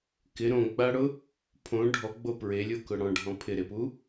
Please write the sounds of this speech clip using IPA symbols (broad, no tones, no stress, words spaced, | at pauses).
kɪ ɾõɡ͡baɽʊ | pʰõ ɖʱɔɡ͡bo pɹelʲokʊ ɽɔ̃ɖʱɔ̃ pʰɪɾepu